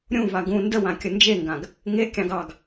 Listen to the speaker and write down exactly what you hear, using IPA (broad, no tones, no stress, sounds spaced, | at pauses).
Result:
ɾʲ ũ v a ɡ ũ n d ə w ã kʲ ə n d͡ʒ e ŋ ɡ ã ɡ | ŋ e kʲ ɑ̃ ɡ ɑ ɡ